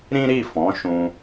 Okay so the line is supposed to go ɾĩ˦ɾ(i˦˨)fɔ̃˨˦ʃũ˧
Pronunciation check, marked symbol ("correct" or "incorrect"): correct